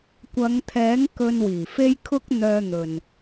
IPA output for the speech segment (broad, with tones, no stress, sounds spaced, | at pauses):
kʷ ɐ˨˧ ŋ t̪ʰ ɛː˨˥ ŋ k ɵ˧ n w iː˨˩ f e˥ j kʰ ʊ˥ k̚ n̪ œː˧ n̪ ɵ˨ n